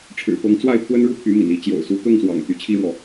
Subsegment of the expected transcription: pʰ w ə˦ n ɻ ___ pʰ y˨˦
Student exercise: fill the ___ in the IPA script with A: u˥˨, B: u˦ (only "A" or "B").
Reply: A